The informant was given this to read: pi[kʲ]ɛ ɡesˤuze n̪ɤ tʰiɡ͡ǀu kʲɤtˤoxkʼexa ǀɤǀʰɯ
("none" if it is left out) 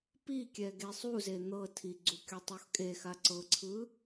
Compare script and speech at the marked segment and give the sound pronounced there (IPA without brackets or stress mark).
kʲ